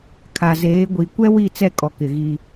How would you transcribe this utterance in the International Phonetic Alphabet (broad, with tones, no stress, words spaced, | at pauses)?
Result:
kʰa˨ zeː˨˦ ɡʷi˨ kʷɛ˦ wi˦˨t͡sɛ˦˨kʼɔ˨kɪ˨ ɣi˦